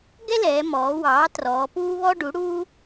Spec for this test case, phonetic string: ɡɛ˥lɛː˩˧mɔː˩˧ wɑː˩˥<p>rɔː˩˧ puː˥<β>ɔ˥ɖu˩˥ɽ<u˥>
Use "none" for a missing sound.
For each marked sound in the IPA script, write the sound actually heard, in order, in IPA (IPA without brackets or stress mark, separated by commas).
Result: t, β, uː˥